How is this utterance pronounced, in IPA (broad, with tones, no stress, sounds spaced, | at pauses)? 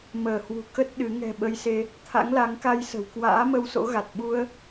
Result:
m əː˧˩ h w ṳ˨˩ k ə˦˥ t̚ ɗ ɨ˨˦ ŋ ɛ̤˨˩ ɓ ə˧ j s e˧ | t̪ʰ a̰˧˥ ŋ l a˨˦ ŋ k a˧ j s ə̤˨˩ w k w a̰ː˧˥ m ə˧ w s o̰˧˥ ɣ a˨˩ t̚ ɓ u˧ ə̯